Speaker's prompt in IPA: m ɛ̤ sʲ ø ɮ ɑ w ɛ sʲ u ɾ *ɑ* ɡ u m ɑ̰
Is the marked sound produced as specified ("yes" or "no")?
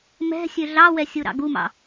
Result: no